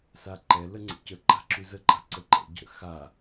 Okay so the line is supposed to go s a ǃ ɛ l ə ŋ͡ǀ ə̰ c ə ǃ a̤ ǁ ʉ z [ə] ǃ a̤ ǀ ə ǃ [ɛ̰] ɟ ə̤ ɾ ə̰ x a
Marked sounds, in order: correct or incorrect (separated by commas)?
correct, correct